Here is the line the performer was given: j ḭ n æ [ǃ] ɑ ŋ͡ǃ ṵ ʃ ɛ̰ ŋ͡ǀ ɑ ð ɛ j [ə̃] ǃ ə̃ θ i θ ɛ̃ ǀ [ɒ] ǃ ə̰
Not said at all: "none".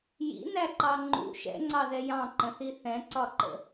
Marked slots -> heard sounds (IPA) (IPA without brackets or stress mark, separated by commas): ǃ, ɑ̃, ɒ